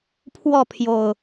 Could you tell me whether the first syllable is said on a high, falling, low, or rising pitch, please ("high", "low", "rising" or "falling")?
falling